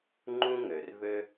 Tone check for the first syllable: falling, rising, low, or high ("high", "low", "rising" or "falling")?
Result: high